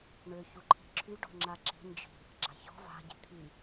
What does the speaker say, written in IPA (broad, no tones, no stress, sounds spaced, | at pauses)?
ɳ ø ç u ǃʰ i̤ ǁʰ y ɖ ɔ̤ ŋ͡ǁ a ǁ i̤ n d͡ʒ i̤ | ɡ͡ǁ a̤ ç ɔ̤ v a̤ ɟ i̤ t̪ʰ i